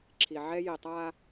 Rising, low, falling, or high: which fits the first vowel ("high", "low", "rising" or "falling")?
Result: low